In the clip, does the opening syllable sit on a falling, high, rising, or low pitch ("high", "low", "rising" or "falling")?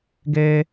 high